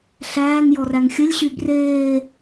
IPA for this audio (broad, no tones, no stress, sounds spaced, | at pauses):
ɬ æː ŋ j ɔ r æ ŋ xʲ ə lʲ ɕ y b r eː